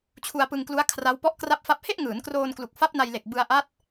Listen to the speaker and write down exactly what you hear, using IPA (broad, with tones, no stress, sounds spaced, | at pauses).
t͡ɕʰ u˧ a̯ p ɯ˧ ŋ k l u˦˥ a̯ kʰ r a˦˥ w p ɔ˦˥ ʔ k r a˦˥ p̚ f a˦˥ p̚ h e˥˩ ʔ ŋ ɯː˩˦ n k r oː˧ n k l u˨˩ k̚ f a˦˥ p̚ n a˧ j l e˨˩ k̚ b ɯ˧ a̯ ʔ a˦˥ t̚